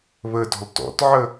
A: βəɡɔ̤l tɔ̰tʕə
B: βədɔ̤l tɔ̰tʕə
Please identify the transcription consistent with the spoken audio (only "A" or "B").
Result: B